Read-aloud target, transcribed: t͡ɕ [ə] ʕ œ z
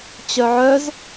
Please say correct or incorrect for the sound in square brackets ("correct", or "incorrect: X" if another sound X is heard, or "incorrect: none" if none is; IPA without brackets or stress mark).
incorrect: œ